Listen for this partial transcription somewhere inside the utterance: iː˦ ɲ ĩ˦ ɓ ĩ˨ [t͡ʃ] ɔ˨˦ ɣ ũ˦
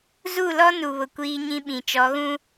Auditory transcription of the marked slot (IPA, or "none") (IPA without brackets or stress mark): t͡ʃ